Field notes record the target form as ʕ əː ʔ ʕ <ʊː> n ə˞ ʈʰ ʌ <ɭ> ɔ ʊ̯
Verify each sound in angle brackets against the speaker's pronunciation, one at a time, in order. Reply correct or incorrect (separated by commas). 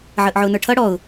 correct, incorrect